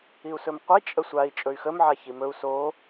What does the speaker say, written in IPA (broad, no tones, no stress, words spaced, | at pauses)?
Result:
iu̯sɵmqʷi t͡ʃʼəsʷai̯ t͡ʃʼɵy̯xəm ʕaçimɵu̯ so